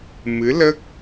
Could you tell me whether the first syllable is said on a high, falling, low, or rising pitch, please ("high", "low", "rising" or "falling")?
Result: rising